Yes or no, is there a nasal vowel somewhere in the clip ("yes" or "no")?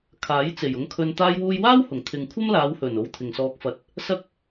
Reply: no